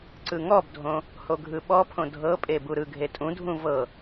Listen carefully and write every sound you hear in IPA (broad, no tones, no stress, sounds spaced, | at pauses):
ǀ ɯ ŋ ɔ b dʱ õ | h o ɡʱ ɯ ɓ ɔ pʰ õ dʱ ɤ pʼ e b u ɾ ɯ ɡʱ e tʼ ũ dʱ ũ v ɤ